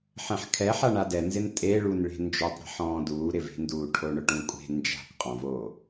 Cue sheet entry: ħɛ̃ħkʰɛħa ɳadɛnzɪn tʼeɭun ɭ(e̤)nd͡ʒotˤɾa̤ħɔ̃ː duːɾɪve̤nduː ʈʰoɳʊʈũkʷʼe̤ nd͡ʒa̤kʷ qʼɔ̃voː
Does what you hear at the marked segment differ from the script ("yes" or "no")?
no